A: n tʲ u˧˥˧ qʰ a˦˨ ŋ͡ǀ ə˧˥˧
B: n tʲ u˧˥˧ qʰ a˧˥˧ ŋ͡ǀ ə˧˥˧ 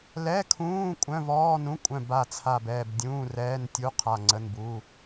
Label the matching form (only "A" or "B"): A